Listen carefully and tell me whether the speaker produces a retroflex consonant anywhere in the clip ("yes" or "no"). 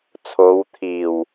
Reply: no